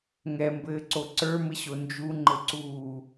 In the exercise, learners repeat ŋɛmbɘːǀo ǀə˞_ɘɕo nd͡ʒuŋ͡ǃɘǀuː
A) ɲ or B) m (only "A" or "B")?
B